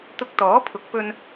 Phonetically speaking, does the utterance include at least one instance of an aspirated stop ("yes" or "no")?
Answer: yes